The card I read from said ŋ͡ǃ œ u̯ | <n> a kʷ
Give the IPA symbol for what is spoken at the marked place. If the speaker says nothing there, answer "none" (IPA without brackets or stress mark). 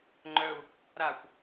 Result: ɾ